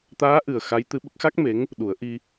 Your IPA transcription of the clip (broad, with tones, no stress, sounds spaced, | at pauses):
t̪ aː˧˥ ʔ ɨ˨˩ ə̯ x a˧˥ j t̪ ɨ˧˥ ɓ ə˦˥ k̚ x a˦˥ k̚ m e˧˥ ŋ | ɗ u˨˩˦ ə̯ ʔ i˧